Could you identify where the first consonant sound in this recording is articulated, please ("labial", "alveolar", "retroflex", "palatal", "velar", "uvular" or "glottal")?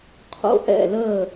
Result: uvular